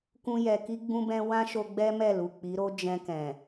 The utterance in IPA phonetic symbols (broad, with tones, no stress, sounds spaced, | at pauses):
k ũ˦ j ɛ˧ k i˦ ɡ͡b ũ˦ b ɛ̃˦ w ã˦ ʃ o˧ ɡ͡b ɛ˦ m ɛ˦˨ l u˨ k͡p i˨˦ ɾ o˦ d͡ʒ ɛ̃˧ k ɛ̃˨